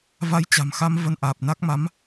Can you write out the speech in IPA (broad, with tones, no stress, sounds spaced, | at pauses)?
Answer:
v a˧ j t͡ɕ a̤˨˩ m x a˧ m v ə˧ n ʔ aː˨˩ p̚ n a˦˥ k̚ m a˨˦ m